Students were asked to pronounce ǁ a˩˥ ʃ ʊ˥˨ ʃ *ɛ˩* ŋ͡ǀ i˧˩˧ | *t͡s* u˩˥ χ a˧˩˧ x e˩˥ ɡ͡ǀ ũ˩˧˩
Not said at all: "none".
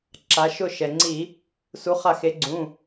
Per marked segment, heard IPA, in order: ɛ˩, s

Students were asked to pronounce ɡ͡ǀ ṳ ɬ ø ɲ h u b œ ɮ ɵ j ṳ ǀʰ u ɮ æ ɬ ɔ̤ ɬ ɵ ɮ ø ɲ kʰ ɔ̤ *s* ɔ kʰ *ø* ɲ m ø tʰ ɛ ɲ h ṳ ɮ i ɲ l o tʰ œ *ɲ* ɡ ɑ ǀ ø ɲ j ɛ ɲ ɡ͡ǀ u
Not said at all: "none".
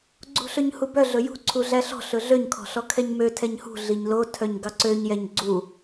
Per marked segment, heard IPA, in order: ɬ, ɛ, ɲ

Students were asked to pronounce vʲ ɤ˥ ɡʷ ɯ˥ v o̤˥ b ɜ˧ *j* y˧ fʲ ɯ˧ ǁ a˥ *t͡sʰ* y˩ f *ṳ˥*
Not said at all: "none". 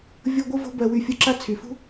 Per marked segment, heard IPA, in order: w, t͡sʰ, ṳ˥

